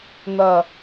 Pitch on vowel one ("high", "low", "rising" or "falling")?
falling